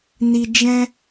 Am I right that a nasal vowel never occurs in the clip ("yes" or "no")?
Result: no